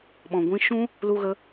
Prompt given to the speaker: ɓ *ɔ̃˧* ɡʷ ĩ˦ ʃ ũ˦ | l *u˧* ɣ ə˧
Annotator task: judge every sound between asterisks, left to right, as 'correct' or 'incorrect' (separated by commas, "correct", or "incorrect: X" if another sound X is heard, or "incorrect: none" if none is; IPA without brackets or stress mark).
correct, correct